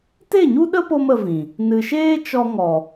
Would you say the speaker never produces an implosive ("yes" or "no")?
no